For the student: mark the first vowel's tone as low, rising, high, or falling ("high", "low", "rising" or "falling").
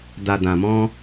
low